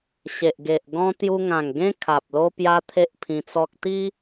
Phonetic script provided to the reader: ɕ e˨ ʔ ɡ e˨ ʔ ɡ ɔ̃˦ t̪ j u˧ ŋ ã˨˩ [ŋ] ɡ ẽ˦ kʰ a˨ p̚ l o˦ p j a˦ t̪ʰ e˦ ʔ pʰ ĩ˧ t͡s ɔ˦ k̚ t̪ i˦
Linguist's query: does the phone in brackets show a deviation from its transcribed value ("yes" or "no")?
no